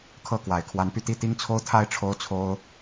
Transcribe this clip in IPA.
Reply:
kʰ ɤ˥˨ k w a˨˩ ɪ̯ kʰ w a˨˦ n p y˧ t̪ i˥˨ t̪ i˦ ŋ t͡sʰ o˦ ʊ̯ t̪ʰ a˥˨ ɪ̯ ʈ͡ʂʰ o˦ ʊ̯ t͡sʰ o˦ ʊ̯

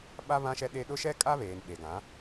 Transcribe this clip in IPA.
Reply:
ɓ a˦ β ã˦ ʃ ɛ˦ ɗ e˦ ɗ ʊ˦ ʃ ɛ˦ kʼ a˦ β eː˨ n ɓ e˨ ɡ ã˨˦

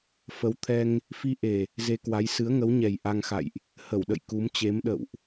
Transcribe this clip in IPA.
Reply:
f ə˨˦ w t̪ʰ ɛ˧ ŋ | f i˧ ʔ e˨˩ | z e˧ k w a˨˦ j s ɨ˨˦ ə̯ ŋ ə˨˦ w ɲ ɛ˨˩ j ʔ a˧ ŋ x a̰˧˨ j ʔ | h ə˧˩ w ɗ ə̰˧˨ j k u˨˦ m t͡ɕ e˨˦ m ɗ ə̰˧˨ w ʔ

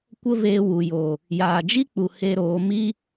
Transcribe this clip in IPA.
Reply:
kʷ ə˦ v eː˧ w u˨ j oː˨ | j aː˨ d͡ʒ i˦ k͡p u˨ h e˧ ɾ oː˨˦ m iː˦

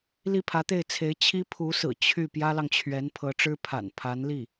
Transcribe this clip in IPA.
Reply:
l i˥˩ pʰ ä˧˥ t̪ e˥˩ ɪ̯ t͡sʰ e˧˥ ɪ̯ t͡ɕʰ i˥ pʰ u˧˥ s ɹ̩˨˩ t͡ɕʰ y˥˩ p j ä˥ l ɑ˨ ŋ t͡ɕʰ ɥ ɛ˧˥ n pʰ ɤ˧˥ ʈ͡ʂ ɻ̩˥ pʰ a̰˨˩ n pʰ a˧˥ n l i˥˩

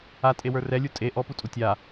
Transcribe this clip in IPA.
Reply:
a tʼ e w ə˞ r ɛ lʲ u tʼ e ʔ ɔ p u tʼ u tʲ a

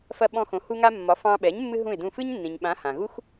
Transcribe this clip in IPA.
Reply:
f ɐ˧ ɓ ɔ̃˧ x õ˩˥ h u˧ ŋ a˧ mː ɒ˩˥ f ɑ̃˧ ɓ ɛ˩˥ ɲ mː ɨ˥ ɦ ũ˥˩ ɪ̯ d ũ˥˩ f ɨ˥ ɲ nː ĩ˩ ɲ ɓ ã˩˥ h ã˩ ɣ u˥ x

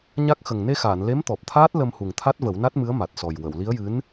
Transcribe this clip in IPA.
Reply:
ɲ a˦˥ k̚ x ə˨˩ ŋ n e˧ x aː˨˩˨ n l e˧˥ m t̪ ɔ˨˩ p̚ t̪ʰ aː˦˥ t̚ l ə˧ m h u˨˩ ŋ t̪ʰ a˦˥ t̚ v ə˨˩˦ w n a˦˥ t̚ m ɨ˧˥ ə̯ m a˨˩ t̚ s ɔ˨˩ j w ə˨˩˨ w l i˧˥ ə̯ j ɨ˧˥ n

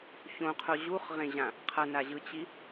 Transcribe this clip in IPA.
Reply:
ç õ qʰ o ʑ u χ ʁ ẽ ʑ ã | qʰ ʌ n a ʑ ɯ t͡ɕ i

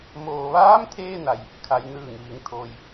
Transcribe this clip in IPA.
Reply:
m oː˩ ʋ aː˧˥ m t̪ʰ eː˧ n a˩ j | kʰ a˩˧ j n ɯː˧˩ ŋ ʋ i˩˧ ŋ t̪ʰ oː˩ j

